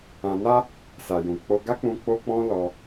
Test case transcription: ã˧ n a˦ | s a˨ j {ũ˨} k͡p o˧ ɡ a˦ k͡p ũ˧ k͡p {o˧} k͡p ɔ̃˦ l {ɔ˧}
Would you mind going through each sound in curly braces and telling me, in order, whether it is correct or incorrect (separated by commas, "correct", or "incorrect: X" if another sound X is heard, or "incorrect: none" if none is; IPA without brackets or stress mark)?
correct, incorrect: o˦, correct